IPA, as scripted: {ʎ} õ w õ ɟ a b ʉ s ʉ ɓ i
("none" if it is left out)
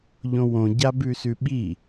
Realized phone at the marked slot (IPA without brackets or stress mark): ʎ